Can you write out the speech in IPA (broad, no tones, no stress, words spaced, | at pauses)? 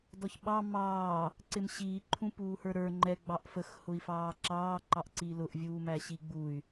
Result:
dɔçɓɑ mɑː | ǀɪmɕiː ǃʰũpuːhə˞ɾə˞ ŋ͡ǃɛ ɡ͡bɑʔfəx hʊi̯fɑːǁɑː ǃɑʔǀilʊʔ vʲuːmæɕiɡ͡buy̯